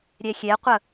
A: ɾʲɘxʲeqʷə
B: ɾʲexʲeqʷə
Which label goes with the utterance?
B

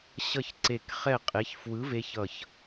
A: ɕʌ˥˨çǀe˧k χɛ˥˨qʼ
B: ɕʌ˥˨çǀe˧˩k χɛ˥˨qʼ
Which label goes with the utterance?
B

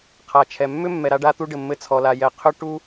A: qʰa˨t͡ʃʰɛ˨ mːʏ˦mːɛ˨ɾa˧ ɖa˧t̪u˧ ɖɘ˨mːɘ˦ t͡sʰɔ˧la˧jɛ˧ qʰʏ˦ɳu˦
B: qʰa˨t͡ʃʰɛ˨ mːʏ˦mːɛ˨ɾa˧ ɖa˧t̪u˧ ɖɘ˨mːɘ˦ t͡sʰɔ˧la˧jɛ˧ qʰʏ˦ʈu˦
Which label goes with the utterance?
B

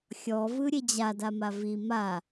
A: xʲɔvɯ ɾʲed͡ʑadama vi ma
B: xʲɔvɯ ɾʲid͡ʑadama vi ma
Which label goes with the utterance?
A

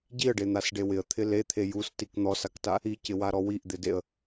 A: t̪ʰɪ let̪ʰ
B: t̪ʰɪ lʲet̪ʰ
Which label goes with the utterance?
A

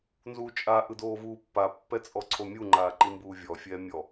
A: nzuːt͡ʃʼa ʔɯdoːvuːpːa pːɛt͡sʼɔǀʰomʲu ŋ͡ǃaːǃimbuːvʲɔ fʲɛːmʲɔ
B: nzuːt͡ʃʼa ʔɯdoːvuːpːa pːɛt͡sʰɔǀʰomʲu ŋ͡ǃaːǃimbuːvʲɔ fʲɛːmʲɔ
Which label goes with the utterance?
A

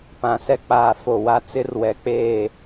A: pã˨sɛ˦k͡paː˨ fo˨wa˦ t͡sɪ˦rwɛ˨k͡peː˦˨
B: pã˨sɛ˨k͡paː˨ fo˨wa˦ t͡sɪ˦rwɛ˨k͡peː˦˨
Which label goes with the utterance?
A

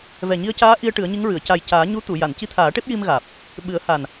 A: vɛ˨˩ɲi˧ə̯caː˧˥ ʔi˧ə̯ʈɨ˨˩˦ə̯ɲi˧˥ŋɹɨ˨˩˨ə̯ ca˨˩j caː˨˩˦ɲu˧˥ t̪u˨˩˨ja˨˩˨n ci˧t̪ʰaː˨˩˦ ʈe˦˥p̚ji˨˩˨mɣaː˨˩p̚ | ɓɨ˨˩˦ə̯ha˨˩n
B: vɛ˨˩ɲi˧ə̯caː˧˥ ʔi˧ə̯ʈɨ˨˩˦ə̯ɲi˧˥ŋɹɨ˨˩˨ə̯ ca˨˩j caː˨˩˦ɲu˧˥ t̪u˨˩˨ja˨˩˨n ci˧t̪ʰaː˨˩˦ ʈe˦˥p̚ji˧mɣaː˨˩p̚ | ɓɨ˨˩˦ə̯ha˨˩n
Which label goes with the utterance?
B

